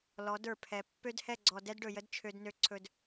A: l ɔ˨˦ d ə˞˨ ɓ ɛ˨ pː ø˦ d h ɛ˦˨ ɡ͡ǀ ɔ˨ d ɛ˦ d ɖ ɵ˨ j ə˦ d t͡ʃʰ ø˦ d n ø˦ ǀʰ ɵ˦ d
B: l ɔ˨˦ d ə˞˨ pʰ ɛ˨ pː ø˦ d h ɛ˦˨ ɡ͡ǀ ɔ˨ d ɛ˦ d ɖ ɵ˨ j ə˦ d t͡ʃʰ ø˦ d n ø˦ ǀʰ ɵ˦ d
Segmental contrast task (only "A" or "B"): B